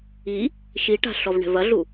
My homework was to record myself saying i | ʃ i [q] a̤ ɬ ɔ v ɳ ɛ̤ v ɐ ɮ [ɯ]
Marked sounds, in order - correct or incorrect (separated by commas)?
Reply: incorrect, incorrect